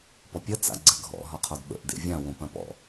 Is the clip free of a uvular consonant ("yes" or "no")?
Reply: no